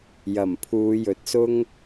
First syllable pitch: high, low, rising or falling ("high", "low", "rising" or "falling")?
low